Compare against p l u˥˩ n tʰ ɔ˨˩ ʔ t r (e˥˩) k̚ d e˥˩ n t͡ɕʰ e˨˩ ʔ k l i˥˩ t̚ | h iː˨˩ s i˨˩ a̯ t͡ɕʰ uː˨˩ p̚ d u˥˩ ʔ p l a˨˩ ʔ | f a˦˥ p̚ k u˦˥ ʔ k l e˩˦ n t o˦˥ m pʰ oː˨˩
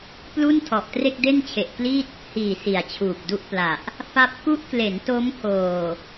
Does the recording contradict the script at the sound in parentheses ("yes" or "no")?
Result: no